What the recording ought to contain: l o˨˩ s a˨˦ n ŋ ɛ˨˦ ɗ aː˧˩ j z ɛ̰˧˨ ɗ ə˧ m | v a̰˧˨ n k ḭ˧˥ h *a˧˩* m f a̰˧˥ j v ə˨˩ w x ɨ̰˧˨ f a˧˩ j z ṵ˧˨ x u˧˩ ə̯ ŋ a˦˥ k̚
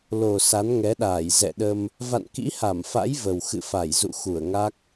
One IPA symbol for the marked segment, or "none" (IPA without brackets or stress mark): a˧˩